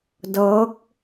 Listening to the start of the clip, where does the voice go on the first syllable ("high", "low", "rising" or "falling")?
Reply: rising